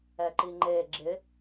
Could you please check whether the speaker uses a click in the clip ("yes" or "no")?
yes